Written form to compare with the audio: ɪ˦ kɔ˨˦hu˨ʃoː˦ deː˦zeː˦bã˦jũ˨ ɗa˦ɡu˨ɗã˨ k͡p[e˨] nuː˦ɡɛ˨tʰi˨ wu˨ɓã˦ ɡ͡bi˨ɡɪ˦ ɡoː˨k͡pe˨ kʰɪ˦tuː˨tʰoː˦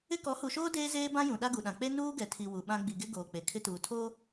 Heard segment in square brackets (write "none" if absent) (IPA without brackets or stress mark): e˦